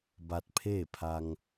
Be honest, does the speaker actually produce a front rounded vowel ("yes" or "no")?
no